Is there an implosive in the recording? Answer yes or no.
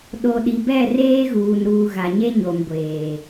yes